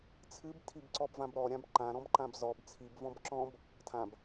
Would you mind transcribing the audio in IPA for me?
t͡sʰɨbtʰib ǀɔbvãbɾɔɾʲãb ǃãɾɔ̃bǃãb zɔb t͡sʰibvɔ̃b ǁɔ̃b | tʰãb

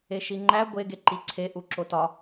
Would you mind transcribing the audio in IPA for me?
eʃiŋ͡ǃæ ɡʷe ɡeǃiǀʰe ʔuǁotɒ

